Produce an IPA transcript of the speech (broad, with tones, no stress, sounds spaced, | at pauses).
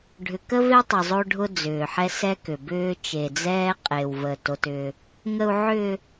ɖʱ ʏ˨ k ə˦ v e˦ tˤ ʏ˨ zˤ o˦ ɖʱ ʊ˦ d͡z ʏː˨ ħ ɛ˦ s ɛ˦ k ʏ˨ b ʏː˦ t͡ʃ e˨ d͡z ɛː˦ qʼ e˨ w v ə˨ t o˦ t ʏː˦ | ŋ ə˨ u̯ ʕ ʏː˨